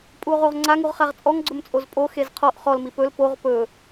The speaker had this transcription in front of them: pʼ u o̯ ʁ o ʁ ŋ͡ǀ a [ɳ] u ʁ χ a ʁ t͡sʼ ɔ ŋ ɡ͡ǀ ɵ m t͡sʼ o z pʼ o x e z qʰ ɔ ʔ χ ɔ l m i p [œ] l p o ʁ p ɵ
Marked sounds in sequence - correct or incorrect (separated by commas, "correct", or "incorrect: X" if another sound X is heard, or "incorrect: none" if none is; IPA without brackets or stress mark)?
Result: incorrect: ŋ, incorrect: ɵ